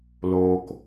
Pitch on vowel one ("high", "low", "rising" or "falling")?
low